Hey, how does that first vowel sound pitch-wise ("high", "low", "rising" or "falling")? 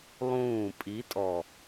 falling